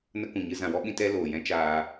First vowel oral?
yes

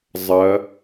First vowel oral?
yes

